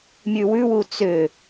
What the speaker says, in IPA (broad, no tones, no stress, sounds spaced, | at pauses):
mʲ ʉ w ʉ w u t͡s ʏ